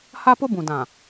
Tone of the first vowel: high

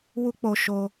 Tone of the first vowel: high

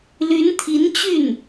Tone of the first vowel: rising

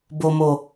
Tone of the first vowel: low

